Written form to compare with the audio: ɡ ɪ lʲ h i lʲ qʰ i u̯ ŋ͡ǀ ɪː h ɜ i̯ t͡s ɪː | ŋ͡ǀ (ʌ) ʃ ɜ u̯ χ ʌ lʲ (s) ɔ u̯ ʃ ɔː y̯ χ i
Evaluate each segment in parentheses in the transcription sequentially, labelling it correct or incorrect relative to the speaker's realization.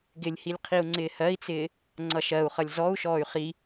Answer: correct, incorrect: z

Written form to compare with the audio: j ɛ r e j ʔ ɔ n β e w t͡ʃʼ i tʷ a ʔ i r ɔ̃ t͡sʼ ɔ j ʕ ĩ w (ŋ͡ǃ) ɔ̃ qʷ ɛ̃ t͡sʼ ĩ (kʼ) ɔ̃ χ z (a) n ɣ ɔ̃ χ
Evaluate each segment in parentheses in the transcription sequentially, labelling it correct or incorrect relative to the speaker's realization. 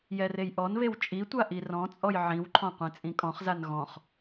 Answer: incorrect: ǃʰ, correct, correct

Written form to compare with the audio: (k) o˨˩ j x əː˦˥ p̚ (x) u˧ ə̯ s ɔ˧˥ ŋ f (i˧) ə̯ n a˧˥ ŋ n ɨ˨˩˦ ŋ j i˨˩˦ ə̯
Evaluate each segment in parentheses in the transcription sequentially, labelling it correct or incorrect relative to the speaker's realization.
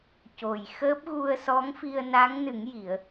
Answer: incorrect: c, incorrect: ɣ, correct

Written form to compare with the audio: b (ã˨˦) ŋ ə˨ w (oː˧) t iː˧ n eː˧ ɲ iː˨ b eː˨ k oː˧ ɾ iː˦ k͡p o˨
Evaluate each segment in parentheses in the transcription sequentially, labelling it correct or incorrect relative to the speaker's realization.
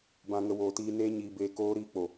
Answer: incorrect: ã˨, incorrect: oː˨

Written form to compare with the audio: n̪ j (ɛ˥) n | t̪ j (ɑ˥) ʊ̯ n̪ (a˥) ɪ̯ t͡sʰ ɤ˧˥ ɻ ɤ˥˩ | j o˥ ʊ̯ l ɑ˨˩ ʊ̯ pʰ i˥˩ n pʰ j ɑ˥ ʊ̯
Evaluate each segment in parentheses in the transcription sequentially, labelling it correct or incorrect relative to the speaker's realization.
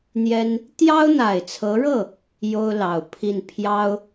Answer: correct, correct, incorrect: a˨˩

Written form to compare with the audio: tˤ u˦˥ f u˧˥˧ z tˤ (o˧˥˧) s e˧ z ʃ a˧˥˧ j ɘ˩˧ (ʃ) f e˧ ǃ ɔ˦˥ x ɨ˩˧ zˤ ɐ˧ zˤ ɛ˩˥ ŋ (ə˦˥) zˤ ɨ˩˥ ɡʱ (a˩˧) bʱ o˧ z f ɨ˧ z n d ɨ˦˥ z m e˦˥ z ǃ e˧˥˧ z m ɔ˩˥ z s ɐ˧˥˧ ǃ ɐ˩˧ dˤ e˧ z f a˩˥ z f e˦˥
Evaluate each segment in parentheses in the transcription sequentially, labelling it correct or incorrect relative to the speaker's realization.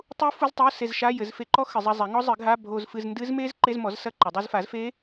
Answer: correct, incorrect: z, incorrect: ɔ˦˥, incorrect: a˧˥˧

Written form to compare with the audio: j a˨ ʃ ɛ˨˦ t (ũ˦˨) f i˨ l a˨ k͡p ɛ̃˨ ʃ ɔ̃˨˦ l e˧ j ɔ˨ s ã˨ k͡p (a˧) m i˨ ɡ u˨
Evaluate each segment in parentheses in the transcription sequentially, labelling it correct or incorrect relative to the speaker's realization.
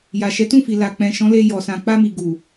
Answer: correct, correct

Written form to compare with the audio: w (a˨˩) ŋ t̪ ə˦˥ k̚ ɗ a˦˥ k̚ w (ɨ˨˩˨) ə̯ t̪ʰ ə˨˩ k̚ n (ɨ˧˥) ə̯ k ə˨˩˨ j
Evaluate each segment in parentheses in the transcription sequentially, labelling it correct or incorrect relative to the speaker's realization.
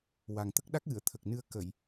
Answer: correct, correct, incorrect: ɨ˧

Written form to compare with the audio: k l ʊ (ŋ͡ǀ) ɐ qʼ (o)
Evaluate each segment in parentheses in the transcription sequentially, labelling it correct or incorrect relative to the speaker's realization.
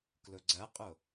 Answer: incorrect: ɡ͡ǀ, correct

